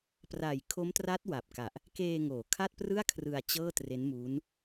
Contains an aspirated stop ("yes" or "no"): yes